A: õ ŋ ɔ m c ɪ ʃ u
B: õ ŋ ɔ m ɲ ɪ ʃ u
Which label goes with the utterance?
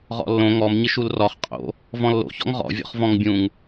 B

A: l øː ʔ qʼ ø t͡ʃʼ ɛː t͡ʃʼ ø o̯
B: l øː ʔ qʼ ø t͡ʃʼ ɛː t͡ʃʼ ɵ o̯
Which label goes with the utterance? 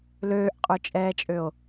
A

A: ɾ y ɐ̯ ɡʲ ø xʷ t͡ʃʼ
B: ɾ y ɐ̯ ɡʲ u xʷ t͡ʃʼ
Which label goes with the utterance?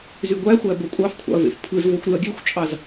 A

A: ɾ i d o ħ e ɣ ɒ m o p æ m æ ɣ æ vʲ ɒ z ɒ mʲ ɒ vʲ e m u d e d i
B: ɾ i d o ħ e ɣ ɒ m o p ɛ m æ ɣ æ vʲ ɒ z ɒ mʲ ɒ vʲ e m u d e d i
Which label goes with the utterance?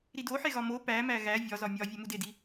A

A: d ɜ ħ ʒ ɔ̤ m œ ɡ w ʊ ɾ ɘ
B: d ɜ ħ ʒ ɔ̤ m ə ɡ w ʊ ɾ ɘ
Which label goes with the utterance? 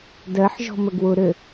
B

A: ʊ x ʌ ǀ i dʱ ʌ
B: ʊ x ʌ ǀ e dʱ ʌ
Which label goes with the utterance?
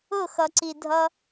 A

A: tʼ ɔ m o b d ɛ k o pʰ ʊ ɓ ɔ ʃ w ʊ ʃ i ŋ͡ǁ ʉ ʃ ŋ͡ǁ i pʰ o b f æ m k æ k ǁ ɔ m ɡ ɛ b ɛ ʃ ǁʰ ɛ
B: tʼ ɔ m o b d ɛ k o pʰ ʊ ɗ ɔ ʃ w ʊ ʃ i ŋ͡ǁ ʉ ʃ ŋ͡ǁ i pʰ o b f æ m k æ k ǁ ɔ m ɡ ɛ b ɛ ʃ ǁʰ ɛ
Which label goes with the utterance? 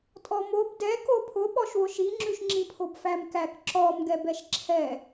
A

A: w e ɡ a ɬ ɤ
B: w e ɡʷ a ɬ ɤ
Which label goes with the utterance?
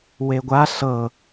B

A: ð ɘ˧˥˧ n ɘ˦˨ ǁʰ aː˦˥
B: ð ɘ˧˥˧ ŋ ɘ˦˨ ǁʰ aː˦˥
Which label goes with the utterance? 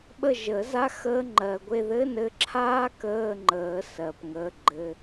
A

